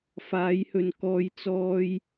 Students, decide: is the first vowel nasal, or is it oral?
oral